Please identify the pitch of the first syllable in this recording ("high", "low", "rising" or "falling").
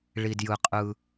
low